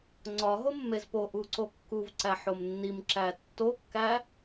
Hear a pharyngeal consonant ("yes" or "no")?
yes